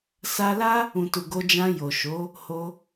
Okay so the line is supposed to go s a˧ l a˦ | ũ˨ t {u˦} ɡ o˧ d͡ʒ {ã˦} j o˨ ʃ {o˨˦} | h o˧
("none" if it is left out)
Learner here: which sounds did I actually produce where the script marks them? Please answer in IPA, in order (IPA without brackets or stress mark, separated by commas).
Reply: u˨, ã˧, o˨˦